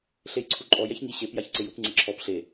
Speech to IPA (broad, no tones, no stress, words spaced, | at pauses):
ɬejǀʰuǃʼɔj ɛçŋi ɕep jaçǀɪjup ŋ͡ǀeǁʰɔp ɬe